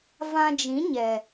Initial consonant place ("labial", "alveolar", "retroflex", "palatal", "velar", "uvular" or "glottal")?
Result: labial